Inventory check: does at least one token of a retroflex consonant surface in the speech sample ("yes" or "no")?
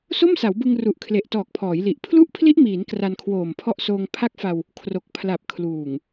no